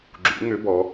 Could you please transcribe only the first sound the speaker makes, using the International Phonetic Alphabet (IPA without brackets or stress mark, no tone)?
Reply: ɡ͡ǁ